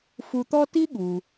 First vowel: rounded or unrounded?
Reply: rounded